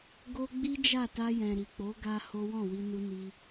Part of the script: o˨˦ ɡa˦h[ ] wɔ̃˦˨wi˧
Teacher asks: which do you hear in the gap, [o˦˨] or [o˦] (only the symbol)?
o˦